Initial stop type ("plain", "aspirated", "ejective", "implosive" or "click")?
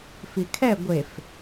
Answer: aspirated